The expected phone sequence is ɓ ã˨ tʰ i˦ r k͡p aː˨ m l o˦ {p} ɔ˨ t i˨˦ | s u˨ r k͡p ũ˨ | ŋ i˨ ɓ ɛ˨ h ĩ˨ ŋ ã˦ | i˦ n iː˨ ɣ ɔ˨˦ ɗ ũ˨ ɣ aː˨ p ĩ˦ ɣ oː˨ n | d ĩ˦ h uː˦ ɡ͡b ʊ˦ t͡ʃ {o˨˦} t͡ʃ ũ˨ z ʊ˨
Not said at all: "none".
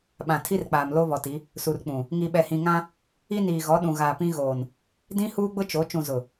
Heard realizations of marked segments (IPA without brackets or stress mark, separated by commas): β, o˨˦